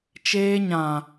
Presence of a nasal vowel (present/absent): present